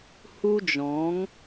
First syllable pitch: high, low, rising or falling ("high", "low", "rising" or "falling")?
high